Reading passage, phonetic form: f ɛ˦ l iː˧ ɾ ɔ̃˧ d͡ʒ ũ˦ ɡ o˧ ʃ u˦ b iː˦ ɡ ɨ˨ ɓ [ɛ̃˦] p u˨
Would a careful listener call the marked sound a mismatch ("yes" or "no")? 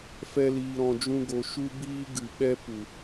yes